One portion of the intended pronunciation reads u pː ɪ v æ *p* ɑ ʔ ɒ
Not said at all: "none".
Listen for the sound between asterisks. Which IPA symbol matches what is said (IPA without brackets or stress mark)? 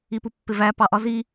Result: p